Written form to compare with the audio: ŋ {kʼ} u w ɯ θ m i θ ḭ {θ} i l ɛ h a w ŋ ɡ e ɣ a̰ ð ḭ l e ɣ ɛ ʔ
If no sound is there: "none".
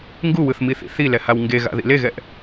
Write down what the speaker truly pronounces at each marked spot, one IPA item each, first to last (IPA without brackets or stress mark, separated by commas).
ɡ, θ